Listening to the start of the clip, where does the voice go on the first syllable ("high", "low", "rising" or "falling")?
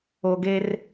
low